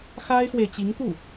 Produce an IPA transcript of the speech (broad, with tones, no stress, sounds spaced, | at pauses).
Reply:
x a˥ ɪ̯ x w e˨ ɪ̯ t͡ɕ i˧˥ ŋ t̪ u˥˩